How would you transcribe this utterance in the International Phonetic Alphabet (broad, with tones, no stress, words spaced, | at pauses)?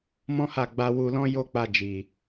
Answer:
mɔ̃˦ha˦˨ɡ͡ba˧ wu˧lɔ̃˦ jo˦k͡pa˧ d͡ʒi˨